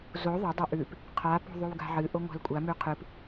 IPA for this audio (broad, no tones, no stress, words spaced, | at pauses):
zo ðˤɐdˤɐ ʔʉp | qʰapo̤ðˤʉw ɡa̤ʕɨ ʔoŋʷa̤lkʷʼa mʉqʰɨp